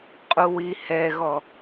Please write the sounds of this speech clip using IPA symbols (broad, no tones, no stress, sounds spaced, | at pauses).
qʼ u w i h ɛ ɣ ɔ